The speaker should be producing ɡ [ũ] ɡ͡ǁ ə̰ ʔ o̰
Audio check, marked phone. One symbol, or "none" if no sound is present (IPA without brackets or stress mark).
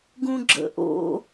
ũ